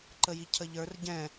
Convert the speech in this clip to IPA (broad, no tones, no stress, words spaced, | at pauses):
ǃəjicʰəʎə˞r ɟɛ̃